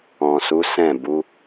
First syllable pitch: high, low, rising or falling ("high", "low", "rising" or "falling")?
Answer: low